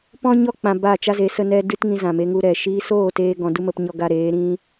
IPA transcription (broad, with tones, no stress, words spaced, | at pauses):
pɔ̃˦ɲɔ˦ k͡pã˧ ba˦˨t͡ʃa˦ze˨˦ sə˧nɛ˧ dɨ˦tŋĩ˧zã˨me˧ ŋu˧ɾɛ˨ ʃiː˧soː˦˨ teː˦ ɡɔ̃˧du˦mə˧p ɲɔ˦ɡa˦ ɾeː˨˦ɾĩ˦